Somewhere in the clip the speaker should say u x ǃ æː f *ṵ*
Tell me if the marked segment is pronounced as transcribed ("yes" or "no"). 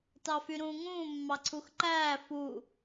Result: no